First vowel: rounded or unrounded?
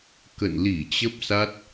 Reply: unrounded